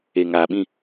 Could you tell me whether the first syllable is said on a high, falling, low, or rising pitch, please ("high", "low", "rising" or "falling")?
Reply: low